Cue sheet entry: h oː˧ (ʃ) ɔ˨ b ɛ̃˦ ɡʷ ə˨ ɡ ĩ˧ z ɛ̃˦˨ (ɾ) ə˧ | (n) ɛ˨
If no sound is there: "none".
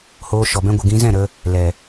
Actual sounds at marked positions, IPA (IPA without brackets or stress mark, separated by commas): ʃ, ɾ, l